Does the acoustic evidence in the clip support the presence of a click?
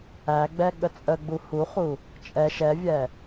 no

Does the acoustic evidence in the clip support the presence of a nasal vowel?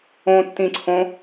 yes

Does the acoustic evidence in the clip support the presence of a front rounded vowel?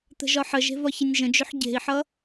yes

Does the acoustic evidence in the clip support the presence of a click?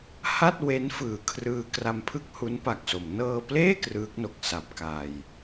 no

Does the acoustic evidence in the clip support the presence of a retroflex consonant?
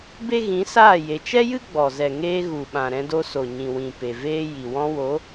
no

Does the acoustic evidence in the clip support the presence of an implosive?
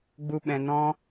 yes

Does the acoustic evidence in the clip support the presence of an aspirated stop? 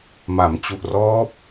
no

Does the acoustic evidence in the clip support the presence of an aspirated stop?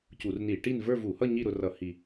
no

